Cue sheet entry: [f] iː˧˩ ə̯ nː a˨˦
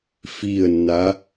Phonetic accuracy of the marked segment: correct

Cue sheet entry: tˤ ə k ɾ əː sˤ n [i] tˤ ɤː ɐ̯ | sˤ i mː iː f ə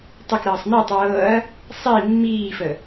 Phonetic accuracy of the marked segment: correct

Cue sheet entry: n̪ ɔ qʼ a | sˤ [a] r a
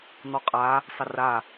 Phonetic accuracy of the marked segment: incorrect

